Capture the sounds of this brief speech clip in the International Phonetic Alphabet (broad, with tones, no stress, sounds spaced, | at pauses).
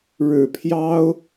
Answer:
ɻ ɻ̩˨˩ pʰ j ɑ˥ ʊ̯